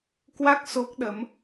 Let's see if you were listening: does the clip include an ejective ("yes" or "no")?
no